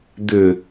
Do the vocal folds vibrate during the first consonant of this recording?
yes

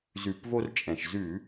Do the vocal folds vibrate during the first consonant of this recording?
yes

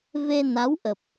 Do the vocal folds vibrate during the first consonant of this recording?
yes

